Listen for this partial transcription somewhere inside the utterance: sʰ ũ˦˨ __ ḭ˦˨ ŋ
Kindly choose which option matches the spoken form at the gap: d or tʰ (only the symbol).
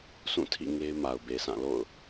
tʰ